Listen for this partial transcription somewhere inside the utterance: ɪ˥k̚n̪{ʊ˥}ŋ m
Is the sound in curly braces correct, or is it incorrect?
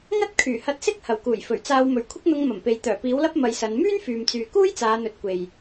incorrect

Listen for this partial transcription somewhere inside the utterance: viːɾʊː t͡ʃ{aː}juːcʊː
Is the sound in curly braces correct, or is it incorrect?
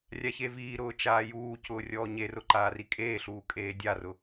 correct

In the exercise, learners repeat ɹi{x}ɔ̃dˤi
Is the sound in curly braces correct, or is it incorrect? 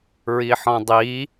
incorrect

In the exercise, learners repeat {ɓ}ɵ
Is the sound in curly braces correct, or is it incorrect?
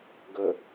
incorrect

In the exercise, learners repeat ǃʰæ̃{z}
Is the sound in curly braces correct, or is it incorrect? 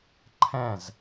correct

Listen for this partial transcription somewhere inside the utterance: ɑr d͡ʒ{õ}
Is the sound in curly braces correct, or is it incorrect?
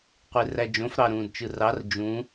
incorrect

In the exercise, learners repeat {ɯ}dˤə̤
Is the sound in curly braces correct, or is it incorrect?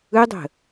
correct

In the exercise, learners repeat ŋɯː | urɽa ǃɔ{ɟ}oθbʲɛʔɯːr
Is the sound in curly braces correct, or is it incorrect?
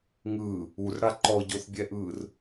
correct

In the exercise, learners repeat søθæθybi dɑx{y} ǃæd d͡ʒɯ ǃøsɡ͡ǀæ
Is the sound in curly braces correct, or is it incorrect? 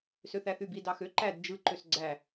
incorrect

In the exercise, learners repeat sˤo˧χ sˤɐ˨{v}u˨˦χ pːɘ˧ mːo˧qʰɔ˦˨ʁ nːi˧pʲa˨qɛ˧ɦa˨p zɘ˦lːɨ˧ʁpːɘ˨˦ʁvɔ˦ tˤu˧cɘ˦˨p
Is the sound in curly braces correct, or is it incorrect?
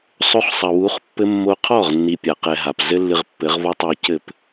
incorrect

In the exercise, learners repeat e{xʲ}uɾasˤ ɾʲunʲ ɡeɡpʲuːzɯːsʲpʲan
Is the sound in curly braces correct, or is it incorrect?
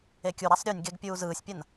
incorrect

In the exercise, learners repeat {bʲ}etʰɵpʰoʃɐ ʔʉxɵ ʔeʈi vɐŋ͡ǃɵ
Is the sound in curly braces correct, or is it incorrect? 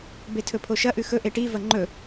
incorrect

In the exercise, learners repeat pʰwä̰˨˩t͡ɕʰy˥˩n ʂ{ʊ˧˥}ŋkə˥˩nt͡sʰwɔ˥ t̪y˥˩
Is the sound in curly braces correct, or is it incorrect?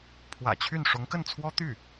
correct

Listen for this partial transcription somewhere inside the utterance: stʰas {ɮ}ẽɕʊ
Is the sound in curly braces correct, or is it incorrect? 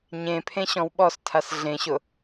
correct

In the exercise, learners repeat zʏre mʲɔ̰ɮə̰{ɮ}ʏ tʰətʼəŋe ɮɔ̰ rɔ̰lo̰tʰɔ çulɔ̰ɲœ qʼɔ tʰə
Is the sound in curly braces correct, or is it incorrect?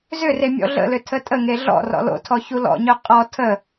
incorrect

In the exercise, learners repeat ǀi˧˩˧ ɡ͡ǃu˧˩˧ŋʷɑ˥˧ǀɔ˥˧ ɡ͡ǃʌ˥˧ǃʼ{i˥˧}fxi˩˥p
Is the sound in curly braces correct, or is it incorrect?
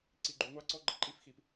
correct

